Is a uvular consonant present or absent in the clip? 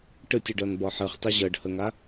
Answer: present